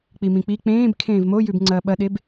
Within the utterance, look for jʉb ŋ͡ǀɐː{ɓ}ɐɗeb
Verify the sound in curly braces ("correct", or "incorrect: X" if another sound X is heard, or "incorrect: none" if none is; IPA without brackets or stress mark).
correct